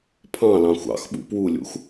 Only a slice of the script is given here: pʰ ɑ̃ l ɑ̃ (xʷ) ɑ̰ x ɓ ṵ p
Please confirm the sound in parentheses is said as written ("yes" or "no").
yes